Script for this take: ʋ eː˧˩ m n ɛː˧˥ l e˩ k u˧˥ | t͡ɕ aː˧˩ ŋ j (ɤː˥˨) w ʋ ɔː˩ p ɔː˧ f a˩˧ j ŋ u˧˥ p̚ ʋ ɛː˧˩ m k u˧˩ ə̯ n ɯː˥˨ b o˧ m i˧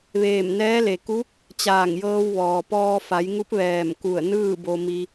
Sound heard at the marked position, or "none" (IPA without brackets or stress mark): ɤː˧